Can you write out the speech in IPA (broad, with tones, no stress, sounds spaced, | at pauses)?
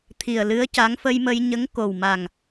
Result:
t̪ʰ i˨˩ ə̯ l ɨ˧˥ ə̯ c a˧˥ ŋ f ə˧ j m ə˧ j ɲ ə˧˥ ŋ k o˨˩ w m a˨˩ ŋ